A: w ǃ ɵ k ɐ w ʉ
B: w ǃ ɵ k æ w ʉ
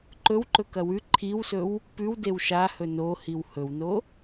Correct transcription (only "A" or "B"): A